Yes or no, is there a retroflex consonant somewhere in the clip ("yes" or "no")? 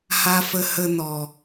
no